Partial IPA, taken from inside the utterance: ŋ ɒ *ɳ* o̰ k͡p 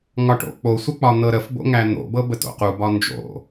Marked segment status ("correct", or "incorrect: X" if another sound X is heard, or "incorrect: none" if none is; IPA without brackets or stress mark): incorrect: ʈ